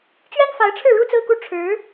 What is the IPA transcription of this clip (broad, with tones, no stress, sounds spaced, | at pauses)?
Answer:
t͡ɕ ɥ ɛ˥ n f a˧˥ ɪ̯ ʈ͡ʂʰ ɻ̩˥˩ ɻ u˥ t͡s ɹ̩˥˧ k u˥˩ ʈ͡ʂʰ ɻ̩˧˥